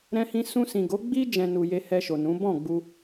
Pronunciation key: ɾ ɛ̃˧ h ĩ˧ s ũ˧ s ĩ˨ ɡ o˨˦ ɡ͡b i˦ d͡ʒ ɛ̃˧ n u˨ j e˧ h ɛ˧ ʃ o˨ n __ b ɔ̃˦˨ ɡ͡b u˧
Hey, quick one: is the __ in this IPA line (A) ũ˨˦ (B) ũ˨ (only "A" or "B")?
A